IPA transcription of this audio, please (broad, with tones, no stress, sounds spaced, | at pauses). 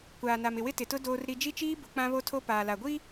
kʷ aː˨ n a˨ m ɪ˨ w ɪ˦ t ɪ˨ t ʊ˦ d oː˦ r ɾ i˦ d͡ʒ i˦ t͡ʃ iː˦ b ʊ˨˦ k͡p ã˦ β o˦ tʰ o˦ p aː˨ l a˨ ɡʷ i˦